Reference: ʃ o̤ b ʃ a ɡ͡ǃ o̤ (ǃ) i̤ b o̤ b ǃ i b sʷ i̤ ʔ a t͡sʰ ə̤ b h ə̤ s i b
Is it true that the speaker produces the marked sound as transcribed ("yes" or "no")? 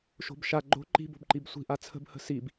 yes